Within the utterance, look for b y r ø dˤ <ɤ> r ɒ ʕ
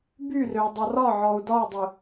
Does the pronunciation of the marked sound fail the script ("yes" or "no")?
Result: no